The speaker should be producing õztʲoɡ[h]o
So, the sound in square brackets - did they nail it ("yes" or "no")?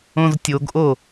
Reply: no